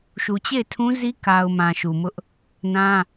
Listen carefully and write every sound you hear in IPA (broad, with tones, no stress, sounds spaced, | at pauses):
ʃ u˨ t͡ɕ e˦˨ ɪ̯ tʰ ũ˦ z i˦ k a˨ ʊ̯ m ã˨ ʃ u˨ m ʊ˦ ʔ | n ã˦